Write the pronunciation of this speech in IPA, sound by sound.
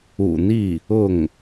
ṵ˨˩ n̪ i˥˩ | ʊ˥˩ ŋ

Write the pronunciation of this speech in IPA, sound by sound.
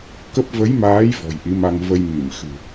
k ə˦˥ p̚ v ə˨˦ j m aː˨˦ j v ɔ̤˨˩ j ʔ i˨˦ m a˧ ŋ v ə˧ j m i˧˩ m x ɨ̤˨˩

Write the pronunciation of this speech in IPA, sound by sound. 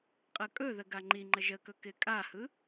qʼ ə kʼ ɵ ð ə ɡ a ŋ͡ǃ i ŋ͡ǃ ə ʒ ə k ɵ k ɪ kʼ a h ɯ

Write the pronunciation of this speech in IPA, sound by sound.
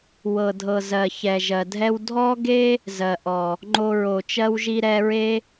w ɤ˨ dʱ ɤ˨ z ɜ˨ ç ɛ˨ ʒ ɜ˨ dʱ ɛ˦ w dʱ ɔ˦ ɡ e˦ | z ɜ˨ ʔ ɔ˨ | ŋ͡ǃ o˧ ɹ o˨ t͡ʃ ɜ˦ w ʒ i˦ ɾ ɛ˧ ɹ e˦

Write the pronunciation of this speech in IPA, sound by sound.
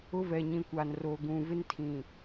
ʊ˦ v ɛ˨ ɲ ĩ˨ kʷ a˨ n r oː˨ ɡ ũ˨ v ɪ˦ n tʰ ĩ˨

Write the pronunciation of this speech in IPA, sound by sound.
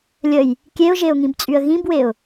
lʲ ə j | kʲ e ʊ̯ ʒ e ʊ̯ ŋ ĩ b t͡sʼ y ə̯ ɣ ĩ b w e ʊ̯

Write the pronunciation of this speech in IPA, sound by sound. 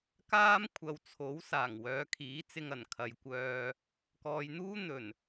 k aː˥ m kʷʰ ɐ˨ w t͡sʰ o˨˥ w s aː˨˩ ŋ w œː˨˧ kʰ iː˨˥ t͡s ɪ˧ ŋ ɐ˨˩ n kʰ ɐ˨ j kʷ œː˧ | k ɔː˨ j n̪ uː˥ n̪ ɵ˨˩ n

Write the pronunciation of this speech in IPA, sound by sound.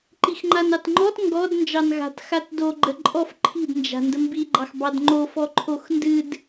ǃ i x ŋ͡ǃ a n ɑ t ŋ͡ǃ ɔ t ŋ ɡ ɔ d n d͡ʒ ɑ n ɣ a̤ t x a t d o ɡ͡ǃ ə ǃʼ ɔ f ǃʰ i̤ d n d͡ʒ a̤ n d ə m b i ɡ͡ǃ ɑ x b ɑ d ŋ͡ǃ o f ɔ ǃʰ o x n d ɨ d

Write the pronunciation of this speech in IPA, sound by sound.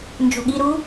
n d͡ʒ o̤ ɠ i ɾ u

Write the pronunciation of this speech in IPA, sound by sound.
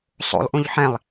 sˤ o̰ lˠ ʔ ũ ʎ ħ ɛ̃ lˠ

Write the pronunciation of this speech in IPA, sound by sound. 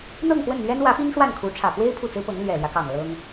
n̪ ɤ˥˧ ŋ x w ə˥˩ n n̪ ɥ ɛ˥ n w ä˧˥ p i˥ ŋ ʂ w a˥˩ n kʰ u˧˥ ʈ͡ʂʰ ä˨˩ p w e˥ ɪ̯ pʰ u˥˩ t͡s ɹ̩˥ p ɤ˧˥ ŋ l ɥ ɛ˨˩ l j ä˦ k ɑ˨˩ ŋ l ɤ˥ ŋ

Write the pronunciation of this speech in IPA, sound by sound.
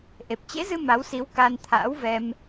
ʔ e˨˩ p̚ t͡ɕ ḛ˧˥ z ɨ˧ m a˨˦ w s i˨˦ w k aː˧ n t̪ʰ a̰ː˧˥ w v ɛ˧ m

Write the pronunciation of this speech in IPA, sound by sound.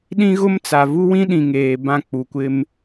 ɗ ĩ˦ ɣ ʊ˦ m t͡s a˨ v u˦ w ĩ˦ ɗ ĩ˨ ŋ eː˨ b ã˦˨ k͡p u˨ kʷ ɪ˦ m

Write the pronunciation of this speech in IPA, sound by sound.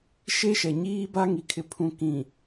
ʃ e˦ ʃ ɛ˨ ɲ iː˦ b a˦ ŋ i˨ kʰ ɪ˨ pʰ ũ˨ k ĩ˨

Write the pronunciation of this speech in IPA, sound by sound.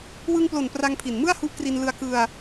w ɯ˧ ŋ p l o˨˩ n p r a˧ ŋ pʰ i˨˩ n m ɯ˥˩ a̯ h u˦˥ ʔ k r i˧ n l ɯ˧ a̯ k ɯ˧ a̯

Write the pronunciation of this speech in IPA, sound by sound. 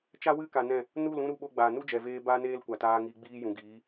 t͡ʃ a˦ w ɨ˦ k a˧ n ɛ̃˦˨ | n u˦˨ l ũ˦ ɾ u˧ ɓ o˧ ɡ͡b aː˨ n u˦ d͡ʒ ɛ˨ v eː˧ b aː˦ n eː˦ l kʷ a˨ t aː˧ ŋ iː˧ ɡ͡b iː˦ j ũ˨ ɡ iː˨˦

